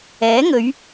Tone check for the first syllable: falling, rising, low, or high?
rising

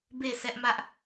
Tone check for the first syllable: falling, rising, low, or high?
falling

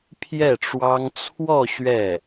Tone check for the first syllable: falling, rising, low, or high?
falling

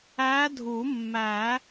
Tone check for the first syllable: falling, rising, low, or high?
rising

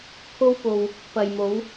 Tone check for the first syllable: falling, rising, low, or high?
high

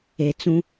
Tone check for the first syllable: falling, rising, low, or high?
low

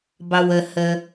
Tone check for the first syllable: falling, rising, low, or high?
low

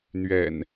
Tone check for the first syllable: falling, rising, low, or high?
low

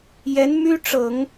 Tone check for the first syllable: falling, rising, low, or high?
rising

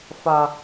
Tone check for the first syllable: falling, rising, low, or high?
high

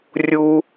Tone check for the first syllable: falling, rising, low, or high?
high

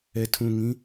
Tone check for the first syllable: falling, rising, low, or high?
low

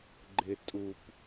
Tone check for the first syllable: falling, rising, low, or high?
low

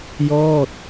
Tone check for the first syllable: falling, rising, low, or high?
falling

